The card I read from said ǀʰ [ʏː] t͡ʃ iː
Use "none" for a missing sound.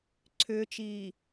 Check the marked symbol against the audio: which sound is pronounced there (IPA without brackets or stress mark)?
ʏː